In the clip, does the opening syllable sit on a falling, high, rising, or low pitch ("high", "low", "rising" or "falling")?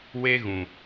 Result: high